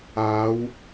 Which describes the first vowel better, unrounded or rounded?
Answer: unrounded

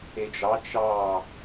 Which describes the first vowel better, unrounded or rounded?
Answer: unrounded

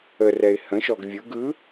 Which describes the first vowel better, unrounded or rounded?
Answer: unrounded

